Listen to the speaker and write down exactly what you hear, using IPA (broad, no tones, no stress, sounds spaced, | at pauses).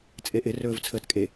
t͡sʼ e ʔ ɪ r ɵː v t͡sʰ əː t kʼ e